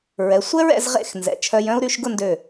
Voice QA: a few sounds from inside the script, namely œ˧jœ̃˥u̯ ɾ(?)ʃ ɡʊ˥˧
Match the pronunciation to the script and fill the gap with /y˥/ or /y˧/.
y˧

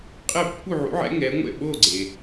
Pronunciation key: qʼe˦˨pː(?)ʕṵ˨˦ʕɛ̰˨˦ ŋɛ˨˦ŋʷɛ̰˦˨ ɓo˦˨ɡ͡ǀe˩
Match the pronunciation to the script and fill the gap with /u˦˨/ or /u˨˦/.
u˦˨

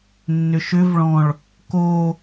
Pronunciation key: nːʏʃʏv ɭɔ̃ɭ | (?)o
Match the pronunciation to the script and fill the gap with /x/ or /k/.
k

